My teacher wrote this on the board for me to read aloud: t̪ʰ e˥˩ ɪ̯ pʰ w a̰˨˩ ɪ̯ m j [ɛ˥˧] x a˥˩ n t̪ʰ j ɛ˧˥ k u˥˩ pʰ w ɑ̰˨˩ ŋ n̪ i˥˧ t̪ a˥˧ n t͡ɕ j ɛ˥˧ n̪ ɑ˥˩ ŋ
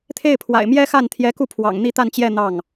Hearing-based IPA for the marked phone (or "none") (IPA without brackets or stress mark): ɛ˥